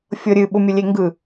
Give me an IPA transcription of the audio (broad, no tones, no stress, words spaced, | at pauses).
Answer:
fʲɤɾʲɨ ɓʊmʲʊlʲeŋɡɯ